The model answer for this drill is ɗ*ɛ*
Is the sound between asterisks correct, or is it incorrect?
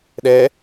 correct